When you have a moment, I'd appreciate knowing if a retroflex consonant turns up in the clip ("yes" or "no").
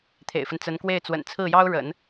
yes